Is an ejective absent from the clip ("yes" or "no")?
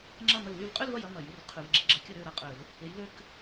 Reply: no